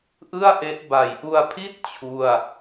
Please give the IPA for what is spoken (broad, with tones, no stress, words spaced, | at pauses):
ʔɯ˥˩a̯ʔe˦˥ʔ ba˨˩jʔu˧a̯pʰi˥˩t̚ t͡ɕʰu˥˩a̯